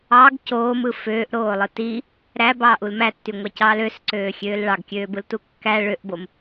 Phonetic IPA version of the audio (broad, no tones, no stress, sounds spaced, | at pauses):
ɑ ɡ c oː m ɯ f øː ʔ ɾ oː lˠ ɯ t i | ɾ æ b ɑː ʔ u l m æ tː y ŋʷ ɑ c ɑː l ø s ǀ øː xʲ øː l ɭ ɑ ɡ kʲ øː b ɯ l t u kː æ ɭ ø ʔ b o m